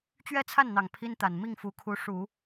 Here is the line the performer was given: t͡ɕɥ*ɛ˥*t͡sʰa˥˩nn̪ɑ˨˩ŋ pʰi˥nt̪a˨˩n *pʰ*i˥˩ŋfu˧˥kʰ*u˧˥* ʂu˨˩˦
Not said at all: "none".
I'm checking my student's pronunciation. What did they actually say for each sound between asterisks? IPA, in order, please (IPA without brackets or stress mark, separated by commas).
ɛ˥, m, u˧˥